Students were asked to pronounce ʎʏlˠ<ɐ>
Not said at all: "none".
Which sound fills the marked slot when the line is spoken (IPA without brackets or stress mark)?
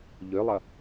ɐ